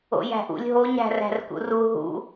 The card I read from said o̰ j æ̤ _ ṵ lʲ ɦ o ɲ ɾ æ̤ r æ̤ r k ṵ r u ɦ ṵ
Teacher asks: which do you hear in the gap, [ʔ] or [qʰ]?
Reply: ʔ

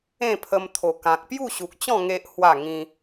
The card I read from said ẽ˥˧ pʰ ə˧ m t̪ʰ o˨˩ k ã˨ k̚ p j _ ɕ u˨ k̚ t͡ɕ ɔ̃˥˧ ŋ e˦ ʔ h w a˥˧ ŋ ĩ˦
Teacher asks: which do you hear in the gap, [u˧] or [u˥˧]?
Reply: u˥˧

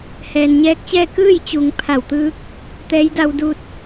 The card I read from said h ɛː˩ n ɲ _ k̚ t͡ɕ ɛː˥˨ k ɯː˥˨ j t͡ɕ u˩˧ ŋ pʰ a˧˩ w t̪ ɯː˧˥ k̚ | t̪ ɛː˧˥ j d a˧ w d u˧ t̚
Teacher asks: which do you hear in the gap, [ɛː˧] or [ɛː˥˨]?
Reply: ɛː˧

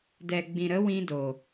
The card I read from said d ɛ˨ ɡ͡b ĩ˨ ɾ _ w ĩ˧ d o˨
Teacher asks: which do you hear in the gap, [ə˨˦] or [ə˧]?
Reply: ə˨˦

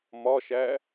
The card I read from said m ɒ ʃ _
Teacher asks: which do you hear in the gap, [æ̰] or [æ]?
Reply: æ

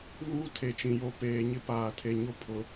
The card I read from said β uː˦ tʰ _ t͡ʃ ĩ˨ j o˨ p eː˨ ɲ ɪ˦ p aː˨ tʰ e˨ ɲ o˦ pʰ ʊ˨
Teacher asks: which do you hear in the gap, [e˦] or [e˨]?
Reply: e˨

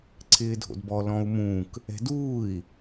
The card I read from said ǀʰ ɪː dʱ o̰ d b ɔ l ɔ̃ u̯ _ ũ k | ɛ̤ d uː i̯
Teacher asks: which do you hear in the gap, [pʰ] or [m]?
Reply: m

